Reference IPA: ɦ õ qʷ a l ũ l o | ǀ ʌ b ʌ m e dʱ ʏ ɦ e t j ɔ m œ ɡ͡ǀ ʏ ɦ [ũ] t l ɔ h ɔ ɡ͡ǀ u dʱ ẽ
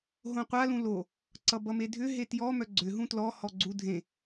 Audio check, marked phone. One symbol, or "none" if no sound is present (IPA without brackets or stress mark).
ũ